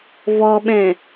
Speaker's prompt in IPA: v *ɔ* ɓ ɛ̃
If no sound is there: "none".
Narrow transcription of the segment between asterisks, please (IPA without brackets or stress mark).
ɔ